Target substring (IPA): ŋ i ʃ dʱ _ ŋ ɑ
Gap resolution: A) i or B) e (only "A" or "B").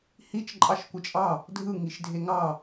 B